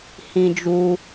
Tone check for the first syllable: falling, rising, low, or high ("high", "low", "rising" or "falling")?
high